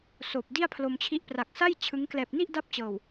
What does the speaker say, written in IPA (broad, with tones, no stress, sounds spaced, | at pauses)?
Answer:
s oː˨˩ p̚ d i˥˩ a̯ pʰ l o˧ m t͡ɕʰ i˦˥ ʔ p r a˨˩ k̚ s a˥˩ j t͡ɕʰ ɯ˦˥ ŋ k l ɛː˨˩ p̚ n i˥˩ ʔ d a˥˩ p̚ t͡ɕ ɤː˨˩ w